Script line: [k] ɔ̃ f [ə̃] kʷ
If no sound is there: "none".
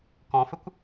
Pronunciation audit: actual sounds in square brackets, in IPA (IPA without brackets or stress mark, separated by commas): k, ə